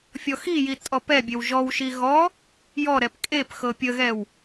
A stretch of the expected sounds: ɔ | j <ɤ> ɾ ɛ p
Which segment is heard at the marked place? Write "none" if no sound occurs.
ɔ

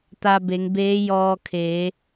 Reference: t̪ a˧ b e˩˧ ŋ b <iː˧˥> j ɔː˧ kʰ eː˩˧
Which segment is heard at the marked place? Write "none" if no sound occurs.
eː˧˥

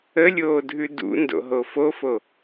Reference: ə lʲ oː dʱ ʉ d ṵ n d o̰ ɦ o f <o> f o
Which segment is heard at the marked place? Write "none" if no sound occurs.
o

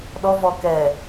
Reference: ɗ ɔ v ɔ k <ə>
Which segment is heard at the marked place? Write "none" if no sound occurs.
ɛ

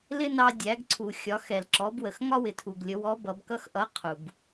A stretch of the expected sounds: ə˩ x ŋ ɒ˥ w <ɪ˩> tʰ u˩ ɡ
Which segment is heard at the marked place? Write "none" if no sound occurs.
ɪ˩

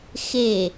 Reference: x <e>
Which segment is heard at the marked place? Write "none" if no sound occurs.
e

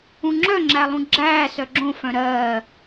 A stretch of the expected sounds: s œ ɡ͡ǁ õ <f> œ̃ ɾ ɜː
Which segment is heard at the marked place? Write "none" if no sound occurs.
f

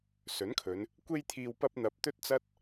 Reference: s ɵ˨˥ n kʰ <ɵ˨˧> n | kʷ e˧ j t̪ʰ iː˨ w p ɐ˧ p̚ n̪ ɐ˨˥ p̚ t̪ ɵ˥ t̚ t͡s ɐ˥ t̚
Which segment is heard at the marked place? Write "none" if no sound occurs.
ɵ˨˧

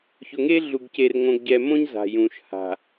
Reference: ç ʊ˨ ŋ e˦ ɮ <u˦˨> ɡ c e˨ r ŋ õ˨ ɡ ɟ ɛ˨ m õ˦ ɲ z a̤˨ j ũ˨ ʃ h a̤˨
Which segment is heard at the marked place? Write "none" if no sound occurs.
u˨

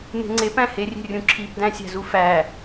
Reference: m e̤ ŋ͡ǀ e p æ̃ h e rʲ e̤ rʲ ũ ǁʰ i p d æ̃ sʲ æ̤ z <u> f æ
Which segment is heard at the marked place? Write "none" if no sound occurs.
u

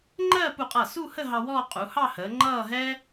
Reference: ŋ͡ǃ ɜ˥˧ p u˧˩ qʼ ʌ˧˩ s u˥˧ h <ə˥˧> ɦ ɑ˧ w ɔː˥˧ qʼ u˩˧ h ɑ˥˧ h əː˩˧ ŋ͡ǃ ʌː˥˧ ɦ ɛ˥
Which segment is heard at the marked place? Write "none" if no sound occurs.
ə˥˧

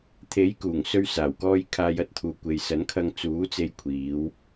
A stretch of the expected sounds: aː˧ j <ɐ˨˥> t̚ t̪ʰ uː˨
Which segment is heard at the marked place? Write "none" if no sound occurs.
ɐ˧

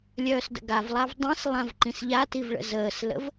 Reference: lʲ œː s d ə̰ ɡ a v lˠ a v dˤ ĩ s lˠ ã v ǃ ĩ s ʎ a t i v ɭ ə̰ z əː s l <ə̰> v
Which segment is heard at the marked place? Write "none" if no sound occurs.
ə̰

